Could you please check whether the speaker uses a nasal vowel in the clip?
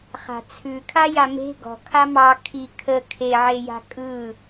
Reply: no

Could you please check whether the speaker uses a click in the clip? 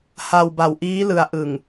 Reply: no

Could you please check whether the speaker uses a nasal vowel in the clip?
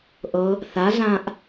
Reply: yes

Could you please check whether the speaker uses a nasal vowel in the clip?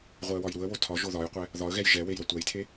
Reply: no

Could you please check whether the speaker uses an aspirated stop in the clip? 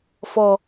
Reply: no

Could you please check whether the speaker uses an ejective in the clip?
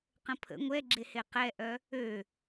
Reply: no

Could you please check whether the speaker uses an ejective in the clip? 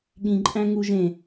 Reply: yes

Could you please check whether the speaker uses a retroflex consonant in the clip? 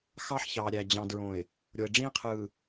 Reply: yes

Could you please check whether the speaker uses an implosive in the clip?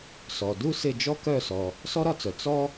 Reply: no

